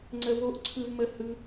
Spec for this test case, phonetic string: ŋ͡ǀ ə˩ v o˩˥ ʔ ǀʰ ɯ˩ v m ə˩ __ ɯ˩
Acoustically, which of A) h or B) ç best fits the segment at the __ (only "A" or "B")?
A